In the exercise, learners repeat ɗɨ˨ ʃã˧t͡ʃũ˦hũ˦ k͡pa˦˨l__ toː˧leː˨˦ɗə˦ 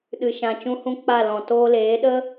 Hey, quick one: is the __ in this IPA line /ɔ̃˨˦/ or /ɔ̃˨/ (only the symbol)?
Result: ɔ̃˨